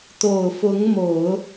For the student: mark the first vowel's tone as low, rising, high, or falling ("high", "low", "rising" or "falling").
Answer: low